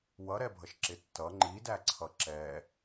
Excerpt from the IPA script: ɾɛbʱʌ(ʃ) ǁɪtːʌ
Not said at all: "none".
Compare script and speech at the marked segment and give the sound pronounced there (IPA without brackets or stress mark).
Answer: ʃ